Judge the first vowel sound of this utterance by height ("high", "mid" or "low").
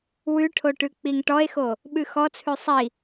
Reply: high